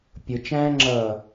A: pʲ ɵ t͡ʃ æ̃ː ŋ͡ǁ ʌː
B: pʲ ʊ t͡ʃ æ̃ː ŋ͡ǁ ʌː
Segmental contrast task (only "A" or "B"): B